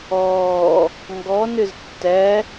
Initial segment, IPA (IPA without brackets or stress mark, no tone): ɔː